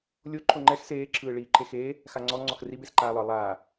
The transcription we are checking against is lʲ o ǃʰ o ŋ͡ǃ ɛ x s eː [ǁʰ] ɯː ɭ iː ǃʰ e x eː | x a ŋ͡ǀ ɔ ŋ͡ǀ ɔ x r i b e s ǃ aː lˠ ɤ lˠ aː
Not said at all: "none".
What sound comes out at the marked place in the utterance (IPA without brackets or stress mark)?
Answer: ǁʰ